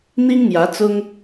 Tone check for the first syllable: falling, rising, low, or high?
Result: high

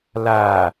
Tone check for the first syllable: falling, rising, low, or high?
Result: low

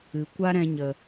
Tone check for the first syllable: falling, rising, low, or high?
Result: low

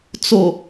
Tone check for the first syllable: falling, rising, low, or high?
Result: low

